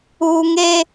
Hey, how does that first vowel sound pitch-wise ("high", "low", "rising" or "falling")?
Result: low